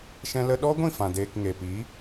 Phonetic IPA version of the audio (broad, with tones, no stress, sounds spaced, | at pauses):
ʃ ɛ̃˧ l ə˧ ɗ ɔ˦ ɡʷ ĩ˦˨ f ã˨ d eː˨ k ŋ e˨ p i˨˦